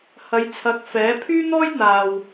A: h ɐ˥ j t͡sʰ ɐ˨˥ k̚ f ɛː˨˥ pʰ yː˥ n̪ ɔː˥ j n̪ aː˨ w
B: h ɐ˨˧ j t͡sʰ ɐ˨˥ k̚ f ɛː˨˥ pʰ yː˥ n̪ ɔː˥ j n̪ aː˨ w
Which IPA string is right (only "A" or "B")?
B